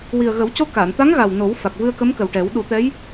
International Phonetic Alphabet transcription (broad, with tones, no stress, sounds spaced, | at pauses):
w i˨˩ ə̯ ɣ ə˨˩˦ w c o˧ k aː˨˩˨ n t̪ a˧˥ ŋ ɣ a˨˩ w n o˨˩˦ w f a˨˩ k̚ v ɨ˧ ə̯ k ə˧˥ m k ə˨˩ w ʈ ɛ˨˩˦ w ɗ u˨˩˦ t̪ ɛ˧˥ j